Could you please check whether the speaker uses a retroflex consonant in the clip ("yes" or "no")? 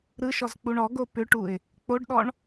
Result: yes